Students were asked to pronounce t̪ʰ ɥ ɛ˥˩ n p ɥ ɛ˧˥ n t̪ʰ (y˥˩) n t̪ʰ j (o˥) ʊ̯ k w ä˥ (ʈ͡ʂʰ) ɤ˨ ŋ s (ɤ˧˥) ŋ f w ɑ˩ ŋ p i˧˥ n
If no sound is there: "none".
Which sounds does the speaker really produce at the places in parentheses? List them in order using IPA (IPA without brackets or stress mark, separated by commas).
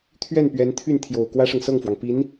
y˥˩, o˨˩, ʂ, ɤ˥˩